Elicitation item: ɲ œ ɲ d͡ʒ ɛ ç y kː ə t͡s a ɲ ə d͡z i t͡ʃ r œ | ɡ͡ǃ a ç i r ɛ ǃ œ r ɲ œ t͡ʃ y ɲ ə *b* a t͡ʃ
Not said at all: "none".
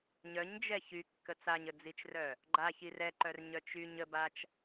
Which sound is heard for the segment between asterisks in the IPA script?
b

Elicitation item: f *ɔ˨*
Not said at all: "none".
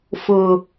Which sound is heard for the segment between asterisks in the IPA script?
ʊ˨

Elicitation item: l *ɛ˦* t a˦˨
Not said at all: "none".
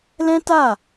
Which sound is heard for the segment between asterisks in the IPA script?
ɛ̃˦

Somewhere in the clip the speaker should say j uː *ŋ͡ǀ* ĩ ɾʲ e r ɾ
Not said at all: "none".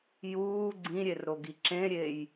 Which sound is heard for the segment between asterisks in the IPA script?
ɡ͡ǀ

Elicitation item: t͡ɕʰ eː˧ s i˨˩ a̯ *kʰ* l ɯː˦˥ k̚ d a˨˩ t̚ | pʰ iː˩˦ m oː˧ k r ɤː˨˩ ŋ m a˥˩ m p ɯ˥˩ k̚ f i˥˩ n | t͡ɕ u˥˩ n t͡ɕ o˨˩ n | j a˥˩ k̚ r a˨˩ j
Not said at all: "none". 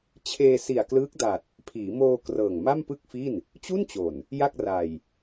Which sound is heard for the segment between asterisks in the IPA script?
k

